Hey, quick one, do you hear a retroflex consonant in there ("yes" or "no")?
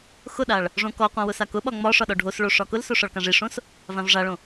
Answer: yes